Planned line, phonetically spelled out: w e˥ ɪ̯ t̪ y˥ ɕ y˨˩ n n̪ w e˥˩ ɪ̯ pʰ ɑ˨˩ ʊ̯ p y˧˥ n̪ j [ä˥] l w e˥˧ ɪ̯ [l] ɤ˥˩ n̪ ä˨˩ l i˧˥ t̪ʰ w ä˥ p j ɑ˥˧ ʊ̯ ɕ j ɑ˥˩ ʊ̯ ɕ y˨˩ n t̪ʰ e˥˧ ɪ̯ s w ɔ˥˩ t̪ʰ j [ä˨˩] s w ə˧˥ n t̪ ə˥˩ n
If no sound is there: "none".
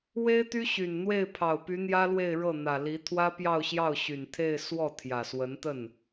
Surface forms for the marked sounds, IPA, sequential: ä˥, ɻ, ä˨˩

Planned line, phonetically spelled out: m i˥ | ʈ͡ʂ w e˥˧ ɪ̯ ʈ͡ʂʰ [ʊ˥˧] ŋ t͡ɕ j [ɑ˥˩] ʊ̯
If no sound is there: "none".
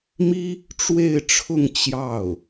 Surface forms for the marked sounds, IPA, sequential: ʊ˥˧, ɑ˥˩

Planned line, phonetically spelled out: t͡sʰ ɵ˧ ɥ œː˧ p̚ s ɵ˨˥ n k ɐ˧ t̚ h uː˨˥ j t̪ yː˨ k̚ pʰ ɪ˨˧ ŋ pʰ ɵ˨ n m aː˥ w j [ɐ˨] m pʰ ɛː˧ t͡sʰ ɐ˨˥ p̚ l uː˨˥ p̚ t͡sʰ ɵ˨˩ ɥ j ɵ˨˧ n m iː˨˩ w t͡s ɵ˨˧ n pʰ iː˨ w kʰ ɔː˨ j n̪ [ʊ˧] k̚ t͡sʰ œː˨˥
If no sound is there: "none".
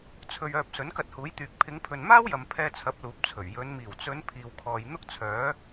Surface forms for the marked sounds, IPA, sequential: ɐ˨, ʊ˥

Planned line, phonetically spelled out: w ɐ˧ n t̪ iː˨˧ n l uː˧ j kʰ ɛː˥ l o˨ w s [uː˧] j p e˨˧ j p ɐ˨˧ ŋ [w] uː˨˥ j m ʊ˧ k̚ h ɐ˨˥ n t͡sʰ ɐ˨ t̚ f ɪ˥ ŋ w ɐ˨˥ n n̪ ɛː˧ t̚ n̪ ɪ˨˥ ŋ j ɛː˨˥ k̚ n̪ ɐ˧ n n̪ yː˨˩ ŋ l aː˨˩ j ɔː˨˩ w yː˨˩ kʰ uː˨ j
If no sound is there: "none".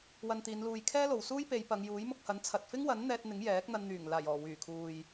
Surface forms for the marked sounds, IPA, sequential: uː˥, j

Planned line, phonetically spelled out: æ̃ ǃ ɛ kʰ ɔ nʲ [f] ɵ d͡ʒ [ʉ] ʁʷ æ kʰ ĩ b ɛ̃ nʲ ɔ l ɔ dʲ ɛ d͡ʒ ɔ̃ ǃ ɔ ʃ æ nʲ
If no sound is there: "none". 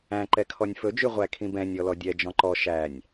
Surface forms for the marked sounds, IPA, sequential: f, ʉ

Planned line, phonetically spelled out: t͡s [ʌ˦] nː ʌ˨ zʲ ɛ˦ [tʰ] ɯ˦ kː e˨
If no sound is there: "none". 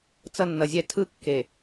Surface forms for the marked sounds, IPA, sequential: ʌ˦, tʰ

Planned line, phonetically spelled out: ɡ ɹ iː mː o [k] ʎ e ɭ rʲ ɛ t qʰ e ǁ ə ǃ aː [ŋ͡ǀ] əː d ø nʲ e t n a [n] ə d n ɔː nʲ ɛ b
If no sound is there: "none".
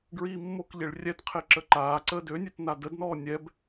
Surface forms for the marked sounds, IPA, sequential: k, ǀ, d

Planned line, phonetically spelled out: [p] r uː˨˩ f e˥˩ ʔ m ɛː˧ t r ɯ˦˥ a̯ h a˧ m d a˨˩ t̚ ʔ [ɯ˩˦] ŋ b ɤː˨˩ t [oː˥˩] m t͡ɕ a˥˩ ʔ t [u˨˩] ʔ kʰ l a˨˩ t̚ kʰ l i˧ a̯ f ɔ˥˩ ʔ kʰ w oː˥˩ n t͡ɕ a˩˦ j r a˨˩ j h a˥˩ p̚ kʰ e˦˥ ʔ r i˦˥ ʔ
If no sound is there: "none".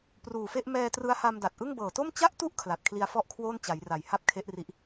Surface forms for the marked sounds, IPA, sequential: p, ɯ˥˩, o˥˩, u˥˩

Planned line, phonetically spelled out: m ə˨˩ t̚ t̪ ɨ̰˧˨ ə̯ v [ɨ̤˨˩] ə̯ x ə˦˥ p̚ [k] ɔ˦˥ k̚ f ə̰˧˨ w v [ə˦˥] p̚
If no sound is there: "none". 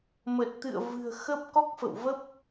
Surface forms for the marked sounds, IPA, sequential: ɨ̤˨˩, k, ə˦˥

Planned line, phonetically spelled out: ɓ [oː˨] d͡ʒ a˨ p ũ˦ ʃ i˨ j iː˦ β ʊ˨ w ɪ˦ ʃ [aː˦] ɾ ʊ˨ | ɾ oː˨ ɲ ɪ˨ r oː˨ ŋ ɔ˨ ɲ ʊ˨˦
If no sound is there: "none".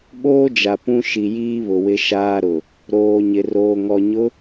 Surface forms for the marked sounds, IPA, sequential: oː˦, aː˦

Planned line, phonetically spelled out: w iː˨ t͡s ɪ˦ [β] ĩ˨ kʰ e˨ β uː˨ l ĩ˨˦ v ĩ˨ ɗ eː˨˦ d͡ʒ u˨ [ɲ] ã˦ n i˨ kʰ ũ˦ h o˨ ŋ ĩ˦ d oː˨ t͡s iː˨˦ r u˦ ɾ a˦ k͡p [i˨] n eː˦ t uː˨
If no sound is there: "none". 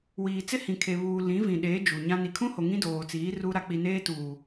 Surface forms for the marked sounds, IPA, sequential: h, ɲ, i˨

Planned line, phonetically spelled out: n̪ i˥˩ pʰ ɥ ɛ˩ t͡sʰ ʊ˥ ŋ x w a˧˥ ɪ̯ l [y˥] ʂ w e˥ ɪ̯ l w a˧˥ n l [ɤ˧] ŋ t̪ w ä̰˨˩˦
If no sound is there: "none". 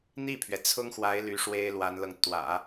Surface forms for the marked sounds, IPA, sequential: y˧˥, ɤ˧

